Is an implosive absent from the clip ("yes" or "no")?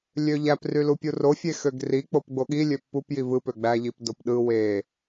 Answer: no